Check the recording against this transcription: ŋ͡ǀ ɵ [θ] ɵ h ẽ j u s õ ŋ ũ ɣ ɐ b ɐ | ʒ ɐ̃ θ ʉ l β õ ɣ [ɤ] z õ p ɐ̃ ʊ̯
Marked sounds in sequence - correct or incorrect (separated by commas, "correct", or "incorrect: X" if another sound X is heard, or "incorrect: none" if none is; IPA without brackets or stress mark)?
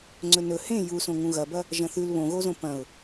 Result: incorrect: n, incorrect: o